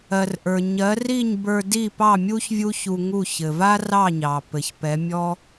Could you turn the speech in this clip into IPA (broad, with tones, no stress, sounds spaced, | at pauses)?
ɜ˩ r ʔ ə˞˩ ɲ ɜ˩˥ r i˥˩ ɲ b ə˞˧ d i˥˩ p ɑ˥˩ mʲ u˥ ç vʲ u˥ ç u˧ ŋ u˥˩ ç ɘ˩ v a˥ r ɑ˥˩ ɲ ɑ˩ p ɘ˩ ç p ɛ˩˥ mʲ ɔ˥